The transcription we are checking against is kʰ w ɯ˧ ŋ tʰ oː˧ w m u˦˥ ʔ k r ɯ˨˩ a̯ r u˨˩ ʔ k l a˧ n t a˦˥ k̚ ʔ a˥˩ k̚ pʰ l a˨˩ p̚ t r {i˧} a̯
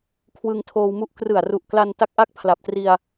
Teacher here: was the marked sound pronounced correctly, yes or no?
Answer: yes